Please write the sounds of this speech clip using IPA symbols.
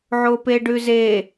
ʕ o p e ɖ ʉ z e

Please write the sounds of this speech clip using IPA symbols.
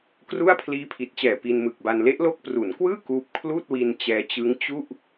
k r u˥˩ a̯ pʰ l iː˦˥ pʰ i˨˩ t̚ t͡ɕ ɛː˨˩ p i˧ n m ɯ˨˩ k̚ b a˧ n l e˦˥ ʔ l o˦˥ k̚ p r u˩˦ n k w ɯː˥˩ k uː˦˥ p̚ kʰ l uː˥˩ t̚ w i˧ n t͡ɕ ɛː˧ t͡ɕ ɯ˦˥ ŋ t͡ɕ u˥˩ ʔ

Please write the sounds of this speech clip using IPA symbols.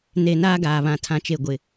n e˨ n aː˦ ɡ aː˨ β ã˨ tʰ ã˨ t͡ʃ e˨ ɡʷ ɪ˨

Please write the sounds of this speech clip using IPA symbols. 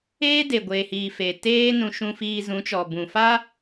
eː˦ d e˨ ɡʷ eː˨ h iː˨ f eː˨ t eː˦ n ũ˧ ʃ ũ˧ f iː˧ z ũ˨˦ t͡ʃ ɔ˨ b ũ˨ f a˦

